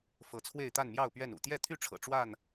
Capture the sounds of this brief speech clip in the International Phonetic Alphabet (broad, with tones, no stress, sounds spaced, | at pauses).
f ɤ˨˦ t͡sʰ w e˥˨ ɪ̯ t̪ a˥˨ n m j ɑ˥˨ ʊ̯ p ɥ ɛ˥˨ n ṵ˨˩ t̪ j ɛ˥˨ t̪ʰ y˥˨ ʈ͡ʂʰ ɤ̰˨˩ ʈ͡ʂ w a˥˨ n